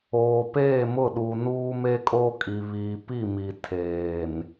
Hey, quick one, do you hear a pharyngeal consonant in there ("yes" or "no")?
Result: no